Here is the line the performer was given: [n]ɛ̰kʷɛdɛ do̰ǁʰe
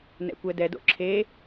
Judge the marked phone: correct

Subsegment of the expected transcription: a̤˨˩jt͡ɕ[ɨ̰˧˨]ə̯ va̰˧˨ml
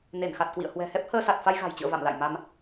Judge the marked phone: correct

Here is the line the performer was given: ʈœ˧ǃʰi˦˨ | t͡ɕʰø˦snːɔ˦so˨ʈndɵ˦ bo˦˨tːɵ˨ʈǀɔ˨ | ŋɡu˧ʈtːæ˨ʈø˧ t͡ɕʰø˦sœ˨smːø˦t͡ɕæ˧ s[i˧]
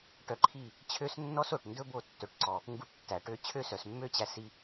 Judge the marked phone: correct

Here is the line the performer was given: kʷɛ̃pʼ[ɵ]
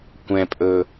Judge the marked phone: correct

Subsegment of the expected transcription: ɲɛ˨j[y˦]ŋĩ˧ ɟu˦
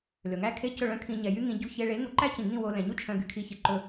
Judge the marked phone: correct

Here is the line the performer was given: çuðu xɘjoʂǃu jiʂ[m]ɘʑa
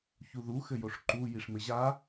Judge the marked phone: correct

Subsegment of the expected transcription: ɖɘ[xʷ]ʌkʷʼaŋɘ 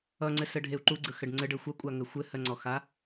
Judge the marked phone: correct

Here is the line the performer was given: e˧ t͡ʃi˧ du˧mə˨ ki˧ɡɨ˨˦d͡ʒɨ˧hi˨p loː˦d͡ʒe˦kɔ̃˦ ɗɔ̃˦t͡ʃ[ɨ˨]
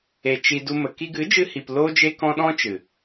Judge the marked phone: correct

